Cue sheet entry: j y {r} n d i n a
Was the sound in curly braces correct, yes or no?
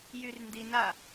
yes